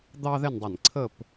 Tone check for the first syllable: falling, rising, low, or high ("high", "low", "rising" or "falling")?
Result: high